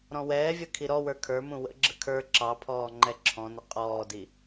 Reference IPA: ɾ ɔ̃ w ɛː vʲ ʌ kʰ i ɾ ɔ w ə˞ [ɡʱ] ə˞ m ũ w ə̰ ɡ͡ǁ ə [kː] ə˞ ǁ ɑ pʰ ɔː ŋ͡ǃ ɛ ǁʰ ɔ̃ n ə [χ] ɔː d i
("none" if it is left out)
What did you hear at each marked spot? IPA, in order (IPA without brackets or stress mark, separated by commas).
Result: kʰ, kʰ, qʼ